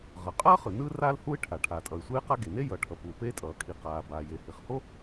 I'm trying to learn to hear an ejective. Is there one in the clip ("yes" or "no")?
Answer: yes